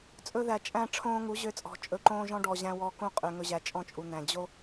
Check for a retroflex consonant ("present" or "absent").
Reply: present